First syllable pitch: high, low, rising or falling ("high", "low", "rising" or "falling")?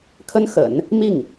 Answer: high